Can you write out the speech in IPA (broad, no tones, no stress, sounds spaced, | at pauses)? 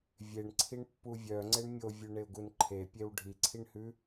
vʲ e ɳ ǀʰ i ɳ pː u vʲ œ ŋ͡ǀ e ɳ mʲ o vʲ ʉ ɳ e ʊ̯ ɡ u n ǃʰ e pʲ e w ɖʱ i ǀʰ i ɳ h ʉ